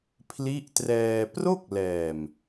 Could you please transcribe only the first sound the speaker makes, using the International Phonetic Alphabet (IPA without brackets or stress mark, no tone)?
pʰ